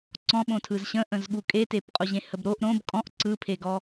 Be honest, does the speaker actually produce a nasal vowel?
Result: yes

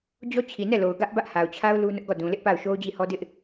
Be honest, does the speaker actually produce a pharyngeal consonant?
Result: no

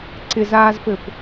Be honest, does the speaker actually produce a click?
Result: yes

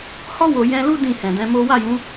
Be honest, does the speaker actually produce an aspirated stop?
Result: no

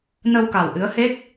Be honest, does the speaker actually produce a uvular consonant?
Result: no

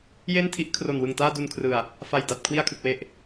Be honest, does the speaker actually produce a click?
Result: no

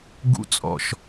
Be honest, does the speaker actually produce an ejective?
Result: yes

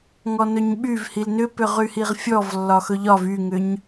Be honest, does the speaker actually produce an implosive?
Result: yes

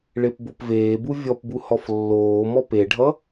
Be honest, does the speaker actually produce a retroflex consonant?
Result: yes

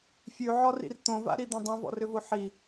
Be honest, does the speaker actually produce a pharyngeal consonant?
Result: yes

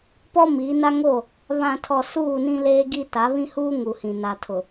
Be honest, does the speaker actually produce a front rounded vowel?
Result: no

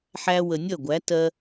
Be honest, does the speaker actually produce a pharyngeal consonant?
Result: yes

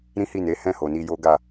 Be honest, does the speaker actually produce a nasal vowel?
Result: yes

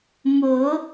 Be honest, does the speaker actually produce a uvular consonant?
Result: no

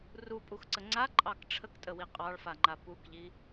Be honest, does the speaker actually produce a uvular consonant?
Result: yes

